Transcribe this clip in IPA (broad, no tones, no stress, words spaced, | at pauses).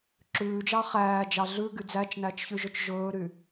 ǁʉːd͡ʒɑ χæːd͡ʒɑ ɮʉɡy d͡zæt͡ʃnæt͡ʃçyʒɵt͡ʃ ʒɵːɾy